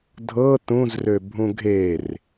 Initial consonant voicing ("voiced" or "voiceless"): voiced